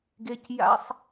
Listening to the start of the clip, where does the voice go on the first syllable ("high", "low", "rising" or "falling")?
high